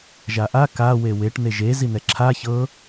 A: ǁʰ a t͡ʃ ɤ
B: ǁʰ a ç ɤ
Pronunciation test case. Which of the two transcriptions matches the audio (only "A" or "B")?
B